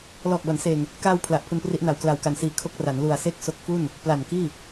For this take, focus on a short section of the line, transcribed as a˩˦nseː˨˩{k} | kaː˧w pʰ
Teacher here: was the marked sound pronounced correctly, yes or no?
no